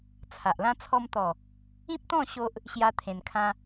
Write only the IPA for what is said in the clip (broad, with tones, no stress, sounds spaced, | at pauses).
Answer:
t͡sʰ a˨ ʔ l ã˦ t͡sʰ ɔ˧ m t̪ ɔ˨˩ | ĩ˦ p̚ t̪ ɔ̃˥˧ ɕ o˦ ʔ | ɕ j a˦ t̪ʰ ẽ˧ n kʰ ã˦